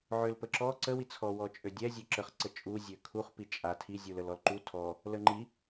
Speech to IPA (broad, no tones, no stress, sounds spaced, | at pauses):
ʕ ø l p ə ǁ ɔ ǀ ə w i t͡sʰ ɔ w ɔ t͡ʃʼ ø dʲ ɛ zʲ ø ǁ ə χ ǀ ə t͡ʃʼ u zʲ ø kʰ u χ p i t͡ʃʼ a tʰ i zʲ u l ə l ɔ l ǃ u tʰ ɔ | l ə ŋ͡ǃ i